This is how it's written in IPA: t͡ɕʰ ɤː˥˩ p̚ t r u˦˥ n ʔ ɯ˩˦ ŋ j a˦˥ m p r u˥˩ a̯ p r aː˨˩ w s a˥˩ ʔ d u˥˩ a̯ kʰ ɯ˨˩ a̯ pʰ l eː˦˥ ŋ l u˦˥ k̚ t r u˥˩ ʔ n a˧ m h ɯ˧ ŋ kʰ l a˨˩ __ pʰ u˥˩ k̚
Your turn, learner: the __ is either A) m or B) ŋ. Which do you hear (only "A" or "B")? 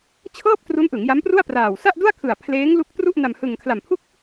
A